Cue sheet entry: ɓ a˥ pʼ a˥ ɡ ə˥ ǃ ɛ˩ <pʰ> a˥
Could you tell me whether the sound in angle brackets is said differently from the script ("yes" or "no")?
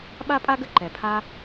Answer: no